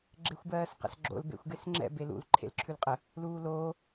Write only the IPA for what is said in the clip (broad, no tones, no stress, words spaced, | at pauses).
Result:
ɡ͡ǁexʷbɜːsqə̰sɡ͡ǁo̰l bḛxʷɡesŋ͡ǁɛ̰ belṵl ǃʰḛlǁʰʉlqʼə | luːloː